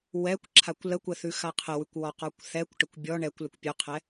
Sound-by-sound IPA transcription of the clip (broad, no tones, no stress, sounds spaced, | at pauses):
w ɛ kʷ ǁʰ a kʷ l ə kʷ ə θ ʉ x a qʰ ə w ʉ kʷ w ɔ q ɔ kʷ θ ɛ kʷ ʈ ə kʷ bʲ ɔ ɳ ɛ kʷ l ə kʷ pʲ ʉ qʰ ɛ